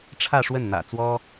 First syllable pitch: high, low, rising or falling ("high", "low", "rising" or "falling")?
falling